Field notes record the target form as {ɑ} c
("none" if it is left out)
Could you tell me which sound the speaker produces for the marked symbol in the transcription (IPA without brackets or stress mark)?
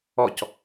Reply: ɔ